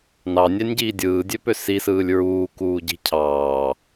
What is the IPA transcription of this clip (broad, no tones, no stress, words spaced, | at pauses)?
nɑnʲænʲɟiː dʲɯːdʲøpø sisɯːlʲ ɹuːkuːɟi̤ cʰɑː